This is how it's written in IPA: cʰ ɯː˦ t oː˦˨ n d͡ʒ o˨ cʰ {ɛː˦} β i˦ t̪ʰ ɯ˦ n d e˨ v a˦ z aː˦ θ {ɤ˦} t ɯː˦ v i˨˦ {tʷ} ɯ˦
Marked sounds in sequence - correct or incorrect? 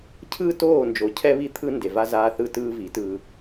incorrect: ɛ˦, incorrect: ɯ˦, incorrect: t

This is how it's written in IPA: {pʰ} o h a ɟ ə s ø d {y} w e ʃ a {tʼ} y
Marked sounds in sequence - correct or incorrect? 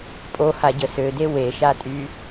incorrect: pʼ, incorrect: e, correct

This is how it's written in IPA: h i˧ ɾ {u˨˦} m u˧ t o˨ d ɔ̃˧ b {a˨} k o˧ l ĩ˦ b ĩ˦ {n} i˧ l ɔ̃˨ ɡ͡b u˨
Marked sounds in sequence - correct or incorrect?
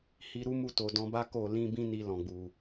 incorrect: u˦, incorrect: a˦, correct

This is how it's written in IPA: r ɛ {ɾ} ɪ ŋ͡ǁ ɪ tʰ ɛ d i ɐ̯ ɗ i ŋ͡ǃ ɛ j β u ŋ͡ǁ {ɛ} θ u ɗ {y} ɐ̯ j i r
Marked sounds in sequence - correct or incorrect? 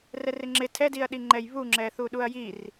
incorrect: r, correct, incorrect: u

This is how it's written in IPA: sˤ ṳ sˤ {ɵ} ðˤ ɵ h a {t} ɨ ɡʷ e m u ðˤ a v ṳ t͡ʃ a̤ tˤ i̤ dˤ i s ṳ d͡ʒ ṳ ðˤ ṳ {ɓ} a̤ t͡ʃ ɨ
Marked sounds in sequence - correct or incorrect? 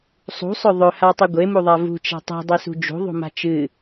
correct, incorrect: tˤ, incorrect: m

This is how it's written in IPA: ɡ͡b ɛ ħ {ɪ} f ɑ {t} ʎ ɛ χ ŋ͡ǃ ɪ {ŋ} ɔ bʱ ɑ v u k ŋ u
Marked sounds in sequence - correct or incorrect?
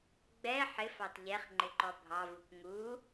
correct, correct, incorrect: ǃ

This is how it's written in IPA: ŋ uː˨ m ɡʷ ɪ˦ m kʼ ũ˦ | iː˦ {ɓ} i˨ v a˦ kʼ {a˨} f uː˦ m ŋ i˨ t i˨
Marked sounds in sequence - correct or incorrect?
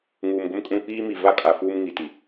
incorrect: m, correct

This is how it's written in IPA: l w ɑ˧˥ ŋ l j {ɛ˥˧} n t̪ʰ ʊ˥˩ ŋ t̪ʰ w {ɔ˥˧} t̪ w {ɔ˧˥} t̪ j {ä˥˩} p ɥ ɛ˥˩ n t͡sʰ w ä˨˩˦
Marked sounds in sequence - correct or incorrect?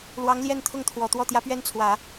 correct, incorrect: ɔ˨˩, incorrect: ɔ˥˩, incorrect: ä˧˥

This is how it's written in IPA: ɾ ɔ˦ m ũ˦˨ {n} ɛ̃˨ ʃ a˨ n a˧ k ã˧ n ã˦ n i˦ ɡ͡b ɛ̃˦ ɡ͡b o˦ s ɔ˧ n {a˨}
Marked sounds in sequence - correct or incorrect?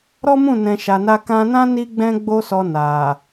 correct, correct

